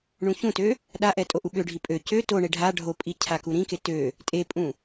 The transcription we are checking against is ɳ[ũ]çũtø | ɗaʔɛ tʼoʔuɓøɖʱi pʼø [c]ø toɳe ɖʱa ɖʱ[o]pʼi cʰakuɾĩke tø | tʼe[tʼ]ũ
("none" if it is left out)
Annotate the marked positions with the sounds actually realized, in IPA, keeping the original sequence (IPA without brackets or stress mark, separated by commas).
ũ, c, o, pʼ